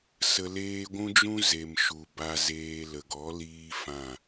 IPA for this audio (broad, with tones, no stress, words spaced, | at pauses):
sə˧leː˦ ɡʷũ˦d͡ʒũ˦ ze˨mʃu˨ ba˧zeː˧ lə˨ɡɔ˨˦liː˧ fã˦˨